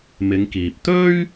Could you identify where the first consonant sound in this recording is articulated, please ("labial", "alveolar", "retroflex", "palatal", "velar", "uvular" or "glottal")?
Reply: labial